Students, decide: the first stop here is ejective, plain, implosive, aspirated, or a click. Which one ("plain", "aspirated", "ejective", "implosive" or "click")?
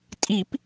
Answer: ejective